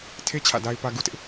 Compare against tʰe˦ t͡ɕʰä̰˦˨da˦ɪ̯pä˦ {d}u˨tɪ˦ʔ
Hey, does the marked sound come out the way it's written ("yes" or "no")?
no